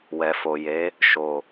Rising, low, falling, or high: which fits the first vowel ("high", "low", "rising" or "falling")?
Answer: low